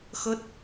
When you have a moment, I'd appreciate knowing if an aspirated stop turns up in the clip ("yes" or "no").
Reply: no